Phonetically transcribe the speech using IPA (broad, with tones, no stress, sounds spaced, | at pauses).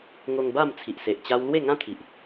ŋ o˧ ŋ b a˥˧ m t͡sʰ i˨ ʔ s e˨ ʔ t͡ɕ a˦ w l w e˥˧ ŋ ã˦ t̪ʰ i˨ ʔ